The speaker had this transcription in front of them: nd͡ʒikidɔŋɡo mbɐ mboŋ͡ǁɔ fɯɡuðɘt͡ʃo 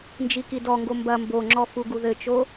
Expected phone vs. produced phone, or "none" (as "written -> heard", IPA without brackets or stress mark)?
ɯ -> u